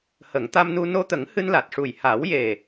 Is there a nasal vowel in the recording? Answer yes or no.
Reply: no